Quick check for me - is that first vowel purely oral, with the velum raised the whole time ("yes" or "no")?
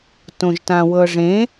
no